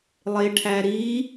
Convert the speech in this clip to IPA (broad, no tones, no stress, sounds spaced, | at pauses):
lˠ e ʈʰ æ ɾ i